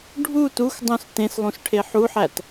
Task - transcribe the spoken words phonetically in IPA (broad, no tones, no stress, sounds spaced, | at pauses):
ɖʱ u t u x dˤ ũ s t ẽ s lˠ ũ s ʈʰ e ħ u ħ æ t